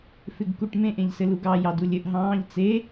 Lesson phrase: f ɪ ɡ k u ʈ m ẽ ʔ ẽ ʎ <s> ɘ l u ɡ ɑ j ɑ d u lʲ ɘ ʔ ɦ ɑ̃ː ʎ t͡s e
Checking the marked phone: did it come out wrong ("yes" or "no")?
no